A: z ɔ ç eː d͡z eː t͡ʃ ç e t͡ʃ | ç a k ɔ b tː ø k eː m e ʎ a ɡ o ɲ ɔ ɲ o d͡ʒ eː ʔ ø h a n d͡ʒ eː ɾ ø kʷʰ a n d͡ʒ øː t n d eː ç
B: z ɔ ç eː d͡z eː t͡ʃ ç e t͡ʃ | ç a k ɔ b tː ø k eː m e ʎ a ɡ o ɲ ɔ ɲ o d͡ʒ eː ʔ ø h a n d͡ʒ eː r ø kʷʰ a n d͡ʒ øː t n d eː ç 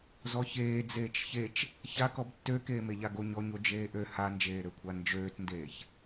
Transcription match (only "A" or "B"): A